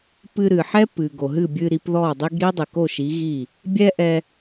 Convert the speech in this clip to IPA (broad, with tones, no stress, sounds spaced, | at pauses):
p ɨ˧ ɾ ɨ˩ ħ ɛ˥ p ɨ˩ ɡ o˩ ɦ ɨ˥˩ bʲ ɨ˧ ɾ i˩˥ p ð ɔ˥˩ dˤ i˥ ɡ ɾ i˥ dˤ i˩ k o˥˩ ʃ i˩˥ ɣ i˥˩ | bʲ ɛ˥ ʔ ɛ˧